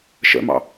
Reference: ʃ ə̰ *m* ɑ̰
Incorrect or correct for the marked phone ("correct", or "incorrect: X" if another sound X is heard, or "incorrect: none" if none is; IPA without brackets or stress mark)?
correct